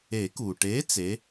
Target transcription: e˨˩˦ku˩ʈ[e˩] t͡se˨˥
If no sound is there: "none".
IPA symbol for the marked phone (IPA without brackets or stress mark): e˨˥